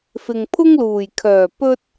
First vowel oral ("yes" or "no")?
yes